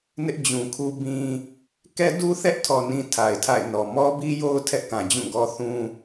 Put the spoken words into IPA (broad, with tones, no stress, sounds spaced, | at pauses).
n ɪ˦ ʔ d͡ʑ ũ˨ kʰ u˦ b ĩ˦ | k ɛ˦ d u˦ θ ɛ˦ ʔ tʰ ɔ˨ n ĩ˦ tʰ a˨ ɪ̯ tʰ a̰˦˨ ɪ̯ n ɔ˨ m ɔ˦ b i˦ j o˦ ʊ̯ tʰ ɛ˦ ʔ k ã˨ d͡ʑ ũ˦˨ ɡ ɔ˦ θ ũ˦